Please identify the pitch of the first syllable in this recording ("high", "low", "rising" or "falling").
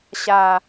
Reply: low